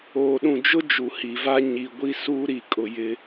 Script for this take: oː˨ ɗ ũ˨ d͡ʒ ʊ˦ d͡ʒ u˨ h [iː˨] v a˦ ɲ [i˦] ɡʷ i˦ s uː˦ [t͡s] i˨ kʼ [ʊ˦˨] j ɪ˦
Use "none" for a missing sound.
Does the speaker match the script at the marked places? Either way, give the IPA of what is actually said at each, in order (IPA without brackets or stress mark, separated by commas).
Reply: i˨, i˨, ɾ, ʊ˨